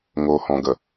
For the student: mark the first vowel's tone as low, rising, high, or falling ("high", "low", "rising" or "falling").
low